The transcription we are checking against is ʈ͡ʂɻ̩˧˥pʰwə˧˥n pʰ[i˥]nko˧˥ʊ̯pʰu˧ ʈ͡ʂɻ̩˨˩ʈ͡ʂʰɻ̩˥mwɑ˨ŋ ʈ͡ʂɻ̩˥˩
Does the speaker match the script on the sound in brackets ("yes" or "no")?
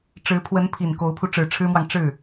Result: no